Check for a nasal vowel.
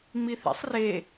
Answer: absent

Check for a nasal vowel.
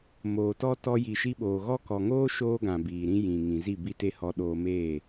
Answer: present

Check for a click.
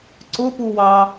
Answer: present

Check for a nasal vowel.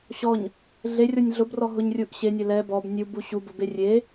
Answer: absent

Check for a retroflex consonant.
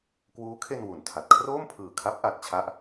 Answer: absent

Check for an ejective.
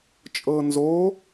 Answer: present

